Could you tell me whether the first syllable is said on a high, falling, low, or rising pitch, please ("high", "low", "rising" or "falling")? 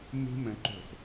high